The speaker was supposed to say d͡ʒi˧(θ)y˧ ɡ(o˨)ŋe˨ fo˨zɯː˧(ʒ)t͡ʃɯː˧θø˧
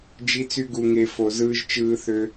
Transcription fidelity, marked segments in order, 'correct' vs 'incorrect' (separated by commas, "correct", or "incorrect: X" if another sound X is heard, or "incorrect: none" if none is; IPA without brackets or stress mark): incorrect: t͡s, incorrect: u˨, correct